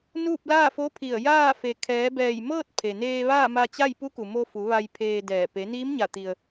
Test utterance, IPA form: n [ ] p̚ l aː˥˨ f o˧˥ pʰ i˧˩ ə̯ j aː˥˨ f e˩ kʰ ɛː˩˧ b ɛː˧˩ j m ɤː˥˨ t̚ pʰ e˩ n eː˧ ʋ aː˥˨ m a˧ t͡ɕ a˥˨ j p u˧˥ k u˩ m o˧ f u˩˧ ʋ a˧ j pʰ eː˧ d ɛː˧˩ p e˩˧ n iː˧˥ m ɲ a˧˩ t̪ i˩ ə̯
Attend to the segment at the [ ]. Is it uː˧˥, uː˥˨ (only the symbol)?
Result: uː˥˨